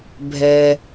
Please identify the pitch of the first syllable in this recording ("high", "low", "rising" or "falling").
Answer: low